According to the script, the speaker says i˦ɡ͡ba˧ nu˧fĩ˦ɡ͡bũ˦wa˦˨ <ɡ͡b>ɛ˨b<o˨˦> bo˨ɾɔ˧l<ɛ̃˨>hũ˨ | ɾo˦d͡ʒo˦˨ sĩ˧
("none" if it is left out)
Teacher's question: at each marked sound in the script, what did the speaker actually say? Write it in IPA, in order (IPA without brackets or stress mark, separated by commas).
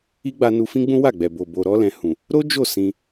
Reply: ɡ͡b, o˨, ɛ̃˨